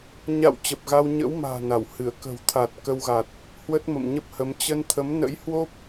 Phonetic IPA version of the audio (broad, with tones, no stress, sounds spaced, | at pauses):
ɲ a̰˧˨ w t͡ɕ ə˨˩ p̚ ɣ a˧ w ɲ ə̰˧˥ w m a̤ː˨˩ n a˧˩ w h ɨ˧˩ ə̯ k ə̤˨˩ w t̪ʰ a˨˩ t̚ k ə˧ w ɣ a˨˩ t̚ | h w ə˦˥ t̚ m ə̰˧˨ m ɲ ə˦˥ p̚ h ə˨˦ m t͡ɕ ə˧ n t̪ʰ ə˨˦ m n ə̰˧˥ j h w o˦˥ p̚